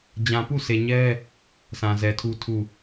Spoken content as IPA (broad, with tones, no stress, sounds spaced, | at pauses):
d͡ʑ ã˨ p u˦˨ s e˨ ɲ ɛ˦ | s ã˨ z ɛ˨ tʰ u˦ tʰ u˦˨